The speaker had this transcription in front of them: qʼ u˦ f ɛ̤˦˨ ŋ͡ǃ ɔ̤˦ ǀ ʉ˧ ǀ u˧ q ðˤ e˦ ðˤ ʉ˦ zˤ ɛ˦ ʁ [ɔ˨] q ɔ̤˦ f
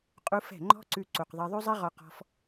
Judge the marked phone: incorrect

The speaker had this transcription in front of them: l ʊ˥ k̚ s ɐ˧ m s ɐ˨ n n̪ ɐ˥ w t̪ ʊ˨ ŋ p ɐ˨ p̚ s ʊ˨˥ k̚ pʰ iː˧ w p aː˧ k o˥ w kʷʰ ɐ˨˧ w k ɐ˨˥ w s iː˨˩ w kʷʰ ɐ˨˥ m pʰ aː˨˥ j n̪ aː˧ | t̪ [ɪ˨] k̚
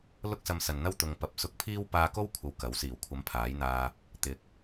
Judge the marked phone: incorrect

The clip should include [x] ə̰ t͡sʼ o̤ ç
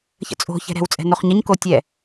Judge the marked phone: incorrect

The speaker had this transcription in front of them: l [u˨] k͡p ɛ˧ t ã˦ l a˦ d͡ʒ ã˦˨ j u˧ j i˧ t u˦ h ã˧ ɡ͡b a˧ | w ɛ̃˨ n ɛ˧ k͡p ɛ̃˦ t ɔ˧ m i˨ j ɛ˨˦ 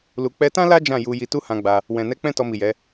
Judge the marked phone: correct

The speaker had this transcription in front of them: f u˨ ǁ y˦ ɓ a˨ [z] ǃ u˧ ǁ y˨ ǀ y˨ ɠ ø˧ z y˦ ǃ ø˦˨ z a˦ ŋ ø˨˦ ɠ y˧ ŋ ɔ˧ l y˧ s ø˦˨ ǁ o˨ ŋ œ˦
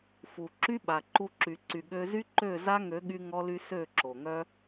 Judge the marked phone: incorrect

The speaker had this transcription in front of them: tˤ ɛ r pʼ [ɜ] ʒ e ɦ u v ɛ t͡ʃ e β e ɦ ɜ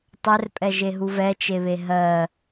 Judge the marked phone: incorrect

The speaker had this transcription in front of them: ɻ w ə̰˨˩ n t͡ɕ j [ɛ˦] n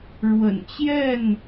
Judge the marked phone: incorrect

